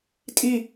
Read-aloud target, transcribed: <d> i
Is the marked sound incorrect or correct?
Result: incorrect